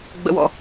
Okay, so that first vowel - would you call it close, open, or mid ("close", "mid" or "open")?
mid